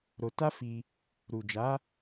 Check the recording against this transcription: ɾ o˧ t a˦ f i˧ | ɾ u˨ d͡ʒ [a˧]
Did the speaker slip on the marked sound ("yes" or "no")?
yes